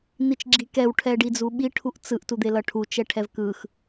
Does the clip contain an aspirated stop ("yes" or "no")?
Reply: yes